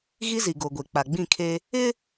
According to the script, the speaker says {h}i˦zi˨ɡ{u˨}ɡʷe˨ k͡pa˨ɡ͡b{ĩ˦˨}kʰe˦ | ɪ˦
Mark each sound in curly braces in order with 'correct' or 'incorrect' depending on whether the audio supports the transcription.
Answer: incorrect: ɣ, incorrect: o˨, correct

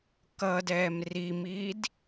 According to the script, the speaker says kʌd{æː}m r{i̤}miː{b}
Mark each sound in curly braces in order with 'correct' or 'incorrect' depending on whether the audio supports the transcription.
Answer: incorrect: ɛː, incorrect: i, incorrect: d

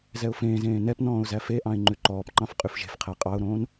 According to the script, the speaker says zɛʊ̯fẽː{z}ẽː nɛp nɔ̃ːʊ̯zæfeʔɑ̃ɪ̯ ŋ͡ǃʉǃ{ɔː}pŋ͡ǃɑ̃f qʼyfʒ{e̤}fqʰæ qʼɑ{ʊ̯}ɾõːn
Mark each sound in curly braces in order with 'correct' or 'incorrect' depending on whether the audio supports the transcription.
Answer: correct, correct, correct, correct

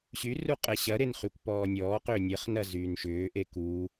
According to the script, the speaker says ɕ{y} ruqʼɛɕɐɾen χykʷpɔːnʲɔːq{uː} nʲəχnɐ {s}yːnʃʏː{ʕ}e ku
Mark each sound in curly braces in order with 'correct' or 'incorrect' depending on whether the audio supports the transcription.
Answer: correct, incorrect: ʏː, incorrect: z, incorrect: ʔ

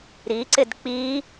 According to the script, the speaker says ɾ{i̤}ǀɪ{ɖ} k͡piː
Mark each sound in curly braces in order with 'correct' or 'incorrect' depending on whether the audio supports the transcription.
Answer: incorrect: i, incorrect: d

